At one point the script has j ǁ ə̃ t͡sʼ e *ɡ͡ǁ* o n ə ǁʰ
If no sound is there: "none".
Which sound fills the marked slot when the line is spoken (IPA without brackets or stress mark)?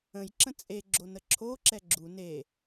ɡ͡ǁ